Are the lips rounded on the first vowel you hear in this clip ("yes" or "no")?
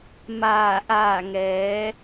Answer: no